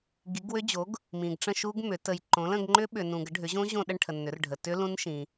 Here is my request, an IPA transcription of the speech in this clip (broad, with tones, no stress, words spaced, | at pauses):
ɡi˩˥ɡwʏ˦˥d͡ʑo˩˥ɡ | mĩ˨ɡʈ͡ʂə̃˥˧ʃu˦˥ɡmʏ˩˥ tə˨jǃõ˩˥lə̃˥˧ɡ ŋ͡ǃʏ˦˥ɓʏ˨ nũ˨ɡə˩˥ɖʱʏ˩˥ʑõ˦˥ ʑõ˥˧ɗə˥˧ɳʈʰə˨nːʏ˩˥r ɖʱə˨tʏ˦˥ lũ˦˥nʃĩ˨